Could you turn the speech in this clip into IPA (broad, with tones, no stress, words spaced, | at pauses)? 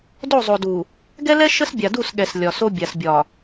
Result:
do˦˨zˤo˨du˨ | ɡɛ˦lɛ˦ ʃə˦sbʲa˨du˦˨s ɠɛ˨s lʲɒ˨so˦ bʲa˨sbʲɒ˨